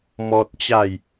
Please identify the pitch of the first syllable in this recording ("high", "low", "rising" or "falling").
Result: high